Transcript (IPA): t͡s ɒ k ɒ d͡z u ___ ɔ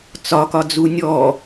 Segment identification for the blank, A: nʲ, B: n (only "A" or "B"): A